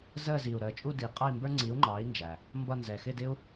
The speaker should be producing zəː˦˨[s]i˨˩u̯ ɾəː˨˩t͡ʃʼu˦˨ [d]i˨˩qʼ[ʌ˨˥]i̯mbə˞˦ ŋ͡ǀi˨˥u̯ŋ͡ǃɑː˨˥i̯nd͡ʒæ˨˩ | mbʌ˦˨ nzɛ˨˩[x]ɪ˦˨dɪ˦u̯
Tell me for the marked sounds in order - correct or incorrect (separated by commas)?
incorrect, correct, incorrect, correct